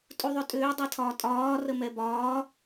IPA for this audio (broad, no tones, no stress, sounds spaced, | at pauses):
tʼ u ðˤ ʏ tʼ ʏː dˤ ɛ tʰ ɒː tʼ ɒː r ə m ɛ b ɒː